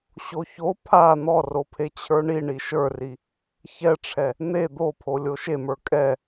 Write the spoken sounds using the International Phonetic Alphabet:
ɕ o ç o pʰ a n̪ ɔ r o pʰ e t͡ɕʰ ə˞ ɳ i ɳ i ʃ ə˞ r i | ç ɛ ʈ͡ʂʰ ɛ | n̪ e d̪ o pʰ o lʲ o ʃ e m ə˞ kʼ ɛ

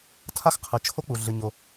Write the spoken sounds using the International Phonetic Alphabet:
tʰ a˥ x qʰ ɨ˩ t͡ʃʰ o˥ k͡p u˩ ɮ ɨ˩ ɲ o˩

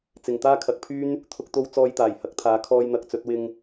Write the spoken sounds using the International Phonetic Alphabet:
t͡s ɪ˨ ŋ t̪ aː˥ kʰ ɐ˧ k̚ pʰ yː˥ n | t̪ʰ ʊ˥ k̚ t̪ o˥ w t͡s ɔː˧ j t̪ aː˨˩ j h ɐ˨˥ k̚ t̪ʰ aː˨˧ kʰ ɔː˧ j n̪ ɐ˨˥ k̚ t͡s ɵ˨˥ t̚ w ɪ˧ ŋ

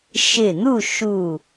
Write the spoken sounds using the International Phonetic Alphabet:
ʃ ɪ˧˩ n̪ u˥˨ ʃ u˧˩

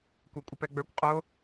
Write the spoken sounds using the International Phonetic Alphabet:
kʷ a kʷʼ ə p ɛ ɡ͡b ə˞ kʷ qʼ o

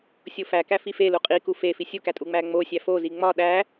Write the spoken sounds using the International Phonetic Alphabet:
sʲ o f æ k æ f i f e l u qʼ i k u f e f i sʲ u k æ tʼ u ŋ͡m æ ŋ͡m o sʲ æ f o z i ŋ͡m ɒ ɗ æ

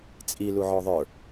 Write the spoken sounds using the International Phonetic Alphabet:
t͡sʼ i l u ʕ ɔ ðˤ ə˞

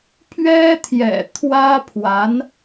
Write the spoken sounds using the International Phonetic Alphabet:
pʰ ɥ ɛ˥ t̪ʰ j ɛ̰˨˩ t̪ʰ w ä˥ pʰ w a˧˥ n

